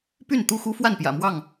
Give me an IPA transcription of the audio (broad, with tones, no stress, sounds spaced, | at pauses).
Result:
p y˥˨ n t̪ u˥˨ x u˦ f w a˥˨ n p j ä̰˨˩ m w ɑ˥˨ ŋ